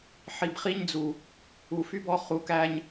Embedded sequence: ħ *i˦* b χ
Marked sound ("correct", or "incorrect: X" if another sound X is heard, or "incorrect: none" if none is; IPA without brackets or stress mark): incorrect: i˨